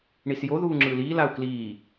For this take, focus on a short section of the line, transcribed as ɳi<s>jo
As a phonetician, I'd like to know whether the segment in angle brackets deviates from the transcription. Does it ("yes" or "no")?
no